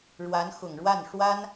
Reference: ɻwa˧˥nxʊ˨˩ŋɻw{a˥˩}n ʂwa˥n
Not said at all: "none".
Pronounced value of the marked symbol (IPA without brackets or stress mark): a˥˩